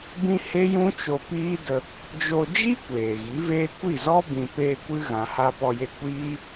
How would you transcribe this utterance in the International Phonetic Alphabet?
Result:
b ĩ˦ h e˦ j ũ˦ t͡ʃ o˧ p iː˦ d ə˧ | d͡ʒ o˧ d͡ʒ i˦ kʷ eː˨ ɣ i˨˦ v eː˦ kʷ i˦˨ z ɔ˦ b ĩ˨ p eː˧ kʷ ɨ˧ ɣ ã˨ h a˧ p ɔ˧ j e˧ kʷ iː˦

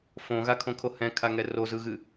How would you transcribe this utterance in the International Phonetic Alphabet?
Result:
f õ ɣ a kʰ õ kʰ o h ɛ̃ kʰ a ŋ ɛ r o z ɯ ɣ ɨ

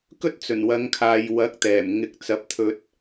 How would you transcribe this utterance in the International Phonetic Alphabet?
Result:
k ɵ˥ t̚ t͡s ɵ˨˩ n w ɐ˨˧ ŋ kʰ aː˨ j w ɐ˨˥ k̚ t̪ ɛː˨˩ m ŋ ɪ˨˥ k̚ t͡s ɐ˨˥ p̚ t̪ʰ ɵ˧ t̚

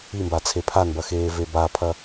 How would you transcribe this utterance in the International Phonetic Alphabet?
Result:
i m b a t͡sʰ e pʰ a n b ɐ x eː v e b a pʰ ɐ

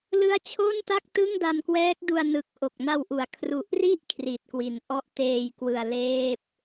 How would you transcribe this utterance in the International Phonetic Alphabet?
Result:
l ɯ˦˥ a̯ t͡ɕʰ o˥˩ n t a˥˩ k̚ t ɯ˥˩ ŋ d a˧ m k w ɛː˦˥ k̚ d u˧ a̯ n ɯ˨˩ k̚ ʔ o˨˩ k̚ n a˧ w ʔ u˨˩ a̯ kʰ r u˨˩ ʔ r i˥˩ ʔ kʰ r i˨˩ t̚ k w i˨˩ n ʔ ɔ˥˩ ʔ t eː˧ j k w ɯ˧ a̯ l eː˥˩ p̚

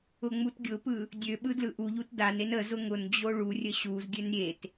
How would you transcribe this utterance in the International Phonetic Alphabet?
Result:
ʊ ŋ͡m u t ɡʲ ʊ p ɯ | dʲ ø ɓ ɯ d l ɯ ʔ u ʎ u t d a n e n ə z ʊ ŋ ʊ n d͡ʑ o ɭ u rʲ ə ɕ u z ɡʲ ø n ɾʲ e t

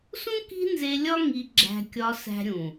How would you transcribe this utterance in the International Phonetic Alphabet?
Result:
s ũ˦ k i̤˦ n z e˧ lʲ ɒ˦ ŋ i˧ ɡ͡ǁ æ̤˧ kʲ ɒ˧ s æ̤˦ ɾʲ ũ˨

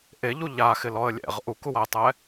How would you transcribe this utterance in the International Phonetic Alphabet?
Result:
ʔ e ʎ u ʎ a x ɪ l ɔ ə̯ lʲ ɛ̰ ʁ ʔ u k u w a ɪ̯ tˤ ɛ

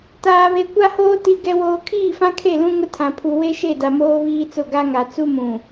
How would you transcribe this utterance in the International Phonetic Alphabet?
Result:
t aː˨ β e˨ kʷ a˦ h oː˦ t i˨ ɡ ɛ˨ w oː˨ kʰ iː˦˨ f ã˦ kʰ e˦˨ l ũ˦ ŋ ʊ˦ tʰ ã˨ pʰ u˨ w e˦ ʃ e˦˨ d a˨ m oː˦ β iː˦ t͡s ʊ˦˨ ɡ a˦ ŋ a˨ t͡s u˦ m ũ˨

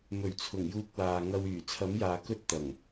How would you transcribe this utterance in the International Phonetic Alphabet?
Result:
m ɵ˨˩ ɥ t͡sʰ ʊ˨˩ ŋ j uː˧ k̚ w aː˨ ŋ ɐ˧ w yː˨˩ t͡sʰ ɐ˨˥ m j aː˨ k ɵ˥ t̚ t̪ ɐ˨˩ ŋ

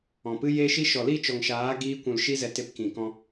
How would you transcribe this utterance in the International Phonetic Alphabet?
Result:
ɔ̃˨ p ɨ˦ j e˦ ʃ i˦ ʃ ɔ˨ l i˦˨ t͡ʃ ɔ˨ ŋ ʃ aː˨˦ ɡ iː˦ kʷ ũ˧ l ʃ i˦ z ɛ˧ t e˧ p k ĩ˨ k ɔ̃˧

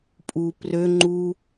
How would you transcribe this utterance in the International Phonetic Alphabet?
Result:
pʼ u p r ø ŋ͡ǃ u

